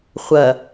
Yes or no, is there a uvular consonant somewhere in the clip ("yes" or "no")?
yes